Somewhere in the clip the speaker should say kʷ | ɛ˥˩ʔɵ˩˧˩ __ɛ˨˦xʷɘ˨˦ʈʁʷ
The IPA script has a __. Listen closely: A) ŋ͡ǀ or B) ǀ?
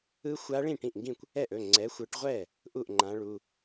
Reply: A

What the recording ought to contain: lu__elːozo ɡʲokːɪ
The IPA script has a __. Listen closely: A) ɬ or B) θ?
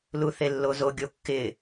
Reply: B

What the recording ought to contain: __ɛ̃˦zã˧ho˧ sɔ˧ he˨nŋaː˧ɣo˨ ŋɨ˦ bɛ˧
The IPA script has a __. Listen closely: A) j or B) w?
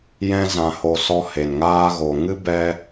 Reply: A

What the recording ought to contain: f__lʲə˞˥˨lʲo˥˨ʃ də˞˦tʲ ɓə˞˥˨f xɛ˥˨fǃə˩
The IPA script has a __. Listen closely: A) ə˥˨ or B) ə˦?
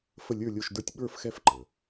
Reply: A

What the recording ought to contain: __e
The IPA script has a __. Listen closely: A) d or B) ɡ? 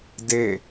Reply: A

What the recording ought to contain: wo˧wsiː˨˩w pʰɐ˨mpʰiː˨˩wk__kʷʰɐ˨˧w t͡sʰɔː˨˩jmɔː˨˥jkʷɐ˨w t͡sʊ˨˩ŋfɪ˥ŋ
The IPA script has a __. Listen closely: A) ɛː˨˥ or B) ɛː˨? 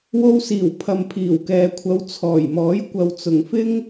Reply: B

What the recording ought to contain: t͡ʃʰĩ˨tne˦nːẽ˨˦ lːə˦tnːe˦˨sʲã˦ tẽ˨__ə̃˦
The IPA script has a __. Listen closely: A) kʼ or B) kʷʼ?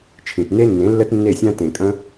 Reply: A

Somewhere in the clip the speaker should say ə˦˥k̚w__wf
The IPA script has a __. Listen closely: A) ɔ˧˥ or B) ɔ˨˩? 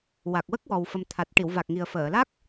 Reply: B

